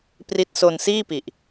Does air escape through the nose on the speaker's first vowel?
no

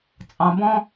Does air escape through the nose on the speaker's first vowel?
yes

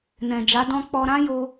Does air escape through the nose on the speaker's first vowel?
yes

